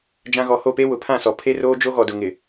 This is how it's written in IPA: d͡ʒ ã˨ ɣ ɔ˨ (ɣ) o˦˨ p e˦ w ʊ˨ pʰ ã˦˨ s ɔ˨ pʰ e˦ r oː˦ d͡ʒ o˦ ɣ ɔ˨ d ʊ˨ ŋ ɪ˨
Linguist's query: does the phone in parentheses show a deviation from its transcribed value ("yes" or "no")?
yes